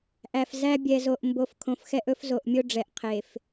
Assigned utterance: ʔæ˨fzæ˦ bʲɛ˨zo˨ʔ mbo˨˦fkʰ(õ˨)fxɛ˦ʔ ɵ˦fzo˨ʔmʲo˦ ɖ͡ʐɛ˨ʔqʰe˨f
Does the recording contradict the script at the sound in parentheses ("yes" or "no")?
no